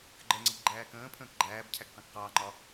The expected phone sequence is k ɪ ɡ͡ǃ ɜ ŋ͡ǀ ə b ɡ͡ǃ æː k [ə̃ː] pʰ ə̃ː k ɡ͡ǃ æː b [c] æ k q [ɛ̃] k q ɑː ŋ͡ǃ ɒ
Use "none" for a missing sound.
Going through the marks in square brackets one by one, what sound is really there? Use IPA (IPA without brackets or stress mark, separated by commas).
ə̃ː, cʰ, ɛ̃